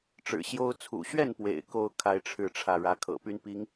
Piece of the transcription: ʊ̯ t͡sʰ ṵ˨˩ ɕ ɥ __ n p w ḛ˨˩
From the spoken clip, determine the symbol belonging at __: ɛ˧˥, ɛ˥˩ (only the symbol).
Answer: ɛ˥˩